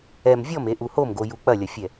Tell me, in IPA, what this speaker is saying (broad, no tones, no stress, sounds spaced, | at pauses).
ɛ m vʲ ɔ m e ʔ u h o m ɡ o j u k͡p ɐ lʲ ɐ fʲ ɛ